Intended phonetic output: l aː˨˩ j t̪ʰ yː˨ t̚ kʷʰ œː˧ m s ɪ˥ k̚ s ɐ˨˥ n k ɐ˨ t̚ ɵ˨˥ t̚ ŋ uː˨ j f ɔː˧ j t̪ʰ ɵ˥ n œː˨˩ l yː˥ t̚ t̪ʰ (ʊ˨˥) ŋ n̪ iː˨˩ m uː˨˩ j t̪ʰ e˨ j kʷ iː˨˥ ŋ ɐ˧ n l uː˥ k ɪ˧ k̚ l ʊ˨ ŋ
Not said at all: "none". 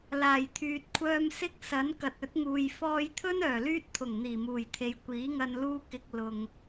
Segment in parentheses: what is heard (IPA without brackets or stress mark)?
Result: ʊ˨˩